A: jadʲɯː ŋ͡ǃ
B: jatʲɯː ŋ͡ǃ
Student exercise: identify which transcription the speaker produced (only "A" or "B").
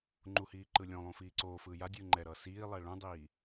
A